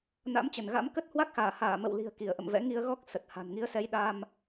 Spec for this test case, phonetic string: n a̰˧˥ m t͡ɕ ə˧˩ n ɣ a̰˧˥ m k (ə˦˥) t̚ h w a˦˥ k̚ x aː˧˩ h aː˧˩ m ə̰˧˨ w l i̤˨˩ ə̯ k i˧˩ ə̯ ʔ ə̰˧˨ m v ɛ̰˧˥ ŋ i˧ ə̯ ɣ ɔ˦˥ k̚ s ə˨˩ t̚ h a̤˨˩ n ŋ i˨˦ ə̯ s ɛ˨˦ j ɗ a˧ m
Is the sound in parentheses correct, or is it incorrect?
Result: correct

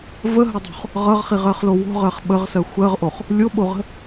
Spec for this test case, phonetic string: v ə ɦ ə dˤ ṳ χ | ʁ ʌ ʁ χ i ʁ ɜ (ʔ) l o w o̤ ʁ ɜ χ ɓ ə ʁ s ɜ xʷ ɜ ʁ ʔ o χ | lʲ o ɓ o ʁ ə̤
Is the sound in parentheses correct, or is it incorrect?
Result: incorrect: χ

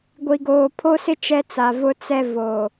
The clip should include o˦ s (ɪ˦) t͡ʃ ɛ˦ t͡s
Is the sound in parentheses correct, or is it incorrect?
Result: correct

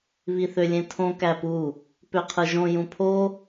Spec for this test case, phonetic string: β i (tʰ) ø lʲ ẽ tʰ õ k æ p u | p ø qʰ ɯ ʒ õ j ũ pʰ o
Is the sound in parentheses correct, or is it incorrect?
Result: incorrect: θ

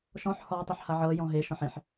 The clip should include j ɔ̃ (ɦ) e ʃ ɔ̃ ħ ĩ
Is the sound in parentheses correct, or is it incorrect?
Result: correct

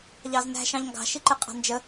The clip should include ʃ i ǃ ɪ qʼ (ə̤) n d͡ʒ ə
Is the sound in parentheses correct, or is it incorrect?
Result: incorrect: ɑ̤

